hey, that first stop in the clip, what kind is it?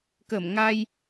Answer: plain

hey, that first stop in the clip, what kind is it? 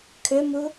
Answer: aspirated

